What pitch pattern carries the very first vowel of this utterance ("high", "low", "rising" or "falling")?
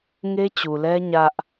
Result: high